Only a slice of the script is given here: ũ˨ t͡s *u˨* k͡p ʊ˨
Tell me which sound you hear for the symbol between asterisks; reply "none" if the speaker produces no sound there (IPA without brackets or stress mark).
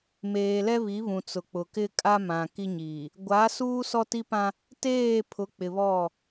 ʊ˨